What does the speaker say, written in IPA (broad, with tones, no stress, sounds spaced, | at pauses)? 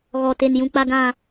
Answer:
ɣ ɔ˨ t e˨ n j ũ˨ k͡p a˨ ɡ ã˨